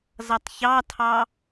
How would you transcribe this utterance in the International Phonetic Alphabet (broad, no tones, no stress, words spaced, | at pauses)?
zʌtˤçɑtʰɑ